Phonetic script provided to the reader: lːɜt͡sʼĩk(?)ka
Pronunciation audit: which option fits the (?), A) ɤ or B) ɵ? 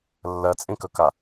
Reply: B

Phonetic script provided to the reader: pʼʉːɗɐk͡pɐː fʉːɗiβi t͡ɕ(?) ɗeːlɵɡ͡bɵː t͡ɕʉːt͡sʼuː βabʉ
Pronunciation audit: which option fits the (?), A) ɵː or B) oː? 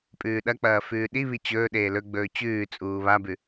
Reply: A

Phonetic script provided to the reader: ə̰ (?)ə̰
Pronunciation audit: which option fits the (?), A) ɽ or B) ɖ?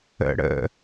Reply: A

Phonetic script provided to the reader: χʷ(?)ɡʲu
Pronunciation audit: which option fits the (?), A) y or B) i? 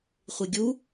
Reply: B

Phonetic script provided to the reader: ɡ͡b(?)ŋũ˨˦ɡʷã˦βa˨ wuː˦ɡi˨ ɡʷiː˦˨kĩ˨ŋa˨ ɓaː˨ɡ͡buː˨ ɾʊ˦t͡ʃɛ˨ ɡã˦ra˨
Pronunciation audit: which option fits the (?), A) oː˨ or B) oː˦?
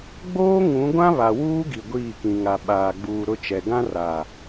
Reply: B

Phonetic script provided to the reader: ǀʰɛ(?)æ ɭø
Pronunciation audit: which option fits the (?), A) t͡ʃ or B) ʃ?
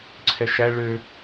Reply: B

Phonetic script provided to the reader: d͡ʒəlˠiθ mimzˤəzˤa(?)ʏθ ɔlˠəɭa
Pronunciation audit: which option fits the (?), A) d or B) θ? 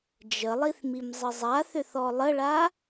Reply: B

